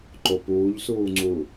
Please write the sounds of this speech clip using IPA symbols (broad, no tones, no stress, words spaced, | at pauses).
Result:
ǃopuːʎsuːŋ͡ǀu